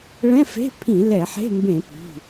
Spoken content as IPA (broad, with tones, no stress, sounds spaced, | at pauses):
ɭ ɛ̃˧˥˧ f e̤˧˥˧ pʰ ĩ˧˩˧ l ɛ˧˩˧ ħ e̤˧˥˧ m b ẽ˧˩˧ p i̤˩˧˩